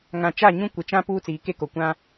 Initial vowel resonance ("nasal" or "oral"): nasal